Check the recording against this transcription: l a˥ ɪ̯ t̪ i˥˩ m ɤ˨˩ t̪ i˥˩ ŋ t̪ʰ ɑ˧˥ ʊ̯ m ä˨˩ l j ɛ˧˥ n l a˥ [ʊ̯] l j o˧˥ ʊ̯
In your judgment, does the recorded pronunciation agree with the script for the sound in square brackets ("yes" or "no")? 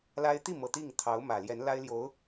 no